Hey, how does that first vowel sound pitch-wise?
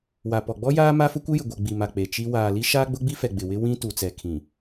low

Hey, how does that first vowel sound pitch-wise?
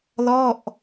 falling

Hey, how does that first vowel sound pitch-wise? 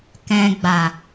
low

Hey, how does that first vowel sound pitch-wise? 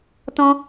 high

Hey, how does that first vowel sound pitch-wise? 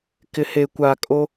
low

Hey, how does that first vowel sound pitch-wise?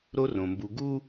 high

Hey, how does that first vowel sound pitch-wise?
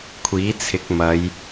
rising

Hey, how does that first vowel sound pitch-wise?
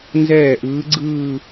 falling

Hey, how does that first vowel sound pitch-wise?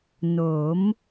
rising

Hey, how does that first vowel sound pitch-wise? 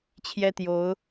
high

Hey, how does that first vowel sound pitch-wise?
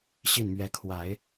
falling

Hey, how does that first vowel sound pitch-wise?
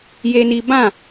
high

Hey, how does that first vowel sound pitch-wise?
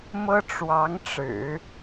high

